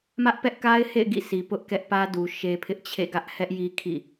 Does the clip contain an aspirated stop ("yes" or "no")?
yes